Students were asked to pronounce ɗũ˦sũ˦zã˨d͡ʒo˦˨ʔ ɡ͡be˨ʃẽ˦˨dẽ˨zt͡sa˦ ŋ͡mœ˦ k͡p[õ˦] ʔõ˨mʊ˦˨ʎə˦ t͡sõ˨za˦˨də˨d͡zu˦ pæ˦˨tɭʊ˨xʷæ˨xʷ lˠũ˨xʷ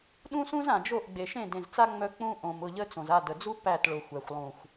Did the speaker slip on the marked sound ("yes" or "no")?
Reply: yes